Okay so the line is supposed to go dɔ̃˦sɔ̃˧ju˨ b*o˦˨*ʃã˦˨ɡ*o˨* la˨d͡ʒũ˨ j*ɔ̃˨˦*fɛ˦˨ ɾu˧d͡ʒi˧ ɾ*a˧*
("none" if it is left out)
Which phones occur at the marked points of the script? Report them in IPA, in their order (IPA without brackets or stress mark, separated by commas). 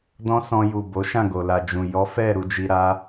o˨˦, o˨, ɔ˨˦, a˧